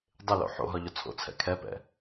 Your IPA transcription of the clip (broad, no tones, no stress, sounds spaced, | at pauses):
dˤ ɪ l o̰ ħ o̰ ɦ ɒ ʎ ʊ t͡sʰ o̰ t͡sʰ ɛ̰ kʰ ɛ p ɛ̰